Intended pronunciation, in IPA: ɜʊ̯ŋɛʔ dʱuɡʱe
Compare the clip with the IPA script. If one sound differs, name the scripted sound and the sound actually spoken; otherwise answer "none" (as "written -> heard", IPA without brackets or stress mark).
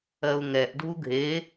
none